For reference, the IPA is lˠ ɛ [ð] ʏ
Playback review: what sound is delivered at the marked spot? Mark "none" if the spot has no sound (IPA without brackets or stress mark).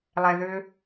ð